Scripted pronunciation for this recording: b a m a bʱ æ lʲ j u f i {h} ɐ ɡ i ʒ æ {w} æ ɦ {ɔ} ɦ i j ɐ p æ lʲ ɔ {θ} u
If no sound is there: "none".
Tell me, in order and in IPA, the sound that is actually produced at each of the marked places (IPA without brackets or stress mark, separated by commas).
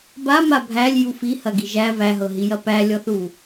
h, v, ɤ, θ